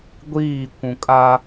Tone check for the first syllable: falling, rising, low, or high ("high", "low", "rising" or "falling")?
falling